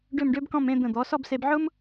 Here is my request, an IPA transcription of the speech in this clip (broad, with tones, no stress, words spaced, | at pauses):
ɖø˥˧mɖø˥bkɔ̃˥˧m ẽ˥˧d̪ə̃˧˩d̪ɔ˩˧ sɔ˥˧bse˧b ʕʊ˥m